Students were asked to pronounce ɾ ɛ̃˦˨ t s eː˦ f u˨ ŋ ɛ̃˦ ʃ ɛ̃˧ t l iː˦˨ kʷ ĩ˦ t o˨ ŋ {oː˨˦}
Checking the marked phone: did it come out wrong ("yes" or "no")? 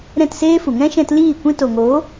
no